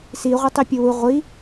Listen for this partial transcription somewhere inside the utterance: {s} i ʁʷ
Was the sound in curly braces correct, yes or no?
yes